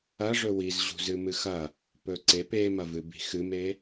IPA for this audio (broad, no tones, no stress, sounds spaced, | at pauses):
ɐ ʐ ɵ w i z ʑ ṳ z ɨ m ɨ x ɐ | p ɵ ǀ e p e m ɐ v ɨ b i̤ x ɨ m e